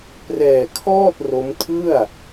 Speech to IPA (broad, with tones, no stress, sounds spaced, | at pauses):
p r ɛː˧ kʰ ɔː˥˩ t̚ r o˦˥ m tʰ ɯ˥˩ a̯